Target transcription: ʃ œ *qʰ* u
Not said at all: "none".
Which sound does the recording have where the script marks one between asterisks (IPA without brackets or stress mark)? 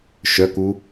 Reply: k